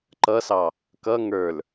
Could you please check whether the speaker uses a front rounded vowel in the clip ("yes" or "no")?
no